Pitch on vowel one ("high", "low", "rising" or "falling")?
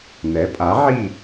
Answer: rising